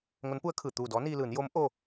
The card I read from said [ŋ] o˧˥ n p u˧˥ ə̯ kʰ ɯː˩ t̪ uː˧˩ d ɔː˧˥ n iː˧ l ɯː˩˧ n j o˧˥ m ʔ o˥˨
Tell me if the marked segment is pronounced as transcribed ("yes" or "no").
yes